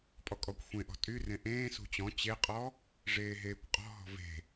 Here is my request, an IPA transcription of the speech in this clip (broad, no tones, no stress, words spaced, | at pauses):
pʼɔkʼɔkʷxʷẽʔɔ̤ tʼyrẽ ʔẽː sṳt͡ɕɔ̃ t͡ɕeqʼɔ | ʐeːɦeːkʷqʼɔ̤ɦɔ̤ ve̤